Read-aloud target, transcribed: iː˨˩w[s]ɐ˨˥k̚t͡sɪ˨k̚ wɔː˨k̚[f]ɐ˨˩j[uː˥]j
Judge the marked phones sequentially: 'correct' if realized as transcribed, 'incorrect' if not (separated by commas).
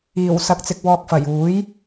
correct, correct, incorrect